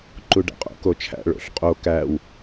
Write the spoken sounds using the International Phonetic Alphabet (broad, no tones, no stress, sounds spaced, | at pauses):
ǃ u ɖ æ̰ qʼ o̰ k o t͡ʃʰ æ̰ ɭ o̰ ɬ qʼ o k æ w